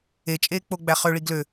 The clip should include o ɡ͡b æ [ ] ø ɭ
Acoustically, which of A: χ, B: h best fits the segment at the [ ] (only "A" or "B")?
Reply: A